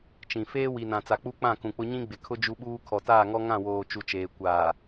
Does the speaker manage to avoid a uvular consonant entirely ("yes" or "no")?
yes